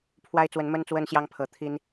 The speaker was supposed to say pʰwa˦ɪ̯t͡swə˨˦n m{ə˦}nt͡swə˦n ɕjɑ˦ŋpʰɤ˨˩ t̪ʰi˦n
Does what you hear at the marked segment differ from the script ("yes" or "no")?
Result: no